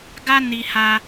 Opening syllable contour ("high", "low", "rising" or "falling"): high